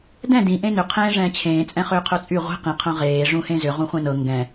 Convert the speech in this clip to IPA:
d ɛ̃ d ĩ ʔ ẽ n ʏ qʰ ẽː ʐ ɛ̃ː t͡ɕʰ ẽː t͡sʼ ɛ̃ χ ʏː qʰ œ t͡sʼ y ʁʷ e̤ q ĩ qʰ œ̃ ʁ eː ʐ ũ h ẽ z ʏ ʁ ũ χʷ ɛ̃ n ɤ ŋ ɡ ɛ̃

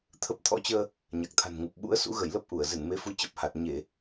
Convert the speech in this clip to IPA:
t̪ʰ ə˦˥ p̚ t̪ʰ ɔ̰˧˥ t͡ɕ əː˧ | ɲ a˨˩ k̚ t̪ʰ a̤˨˩ n ŋ u˨˩ p̚ ɓ ṵ˧˥ ə̯ s ṵ˧˥ ɣ ə˧˩ j l ə˦˥ p̚ ʔ u˧˩ ə̯ z ɨ˧˩ n m e˨˦ f u˨˦ t͡ɕ ə˨˩ p̚ h a˨˩ t̚ ɲ e˧˩˨

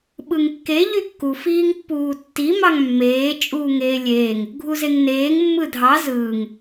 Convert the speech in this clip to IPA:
ɓ ɯ ŋ kː e ʎ y kː u f iː ŋ pː uː tː i m ɑ ŋ mː eː t͡ʃʼ uː ŋ eː lʲ eː ŋ | ɡʱ u z e ŋ n eː ŋ mː ɯ dʱ ɑ z ɯː ŋ

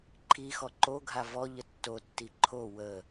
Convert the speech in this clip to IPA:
ǃʰ i x ɔ ǃ o ɡʱ a v ɔ ʎ ə tː o tː i ǃʰ o w ə

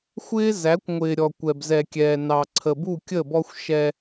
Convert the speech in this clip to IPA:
xʷ ɪː˦ z æ˨˦ kʷ ŋʷ ɪː˨ ɾʲ ɔ˨ kʷ ɛ˨ b z ɛ˨ kʲ ɛː˨ n ɑ˨ ǀʰ ə˨ b u˦˨ kʲ ə˦˨ b ɔ˦ xʷ ʃ ɛ˦

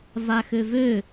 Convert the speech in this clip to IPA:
v a x ø v ø

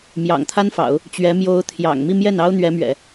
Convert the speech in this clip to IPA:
m j ɑ̰˨˩ ŋ t̪ʰ a˥ n f ɑ̰˨˩˦ ʊ̯ | t͡ɕ ɥ ɛ˧˥ m j o˧˥ ʊ̯ t̪ʰ j ɑ̰˨˩ ŋ m i˥˧ m j ɛ˥˩ n ɑ˥ ʊ̯ n̪ ɥ ɛ˧˥ m ɥ ɛ̰˨˩˦

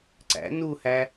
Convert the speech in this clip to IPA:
ǀ æ̰ n u h æ

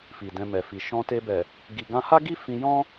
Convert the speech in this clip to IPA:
f i˨ d ɛ̃˧ m ɛ˨ f i˨ ʃ ɔ̃˧ t e˧ b ɛ˨ | ɡ i˨ ɡ ã˧ h a˦ ɡ i˦ f ĩ˧ j ɔ̃˦

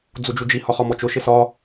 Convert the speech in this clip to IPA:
d͡z u d͡ʒ u d͡ʒ i h ɒ χ ɒ m ɔ t͡ʃ ʊ ʃ ɪ s ɒ

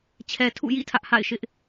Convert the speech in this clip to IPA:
t͡ɕʰ ɛ˨ tʰ ṵ˦˨ j ḭ˦˨ tʰ ä˦ ʔ h a̰˦˨ ɪ̯ ʃ ɪ˦ ʔ

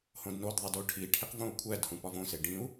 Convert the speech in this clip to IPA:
h õ d n o d ðˤ i d o ʈʰ i ʈʰ i q v õ u̯ kʷʰ æ d h ũ p ɒ v õ s e ɖ ĩ u̯

